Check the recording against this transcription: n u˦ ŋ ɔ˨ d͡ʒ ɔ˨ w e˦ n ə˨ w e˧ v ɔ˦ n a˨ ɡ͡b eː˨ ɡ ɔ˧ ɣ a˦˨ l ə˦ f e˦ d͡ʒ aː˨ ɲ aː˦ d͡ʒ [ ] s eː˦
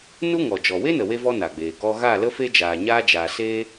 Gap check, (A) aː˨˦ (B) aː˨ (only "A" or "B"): B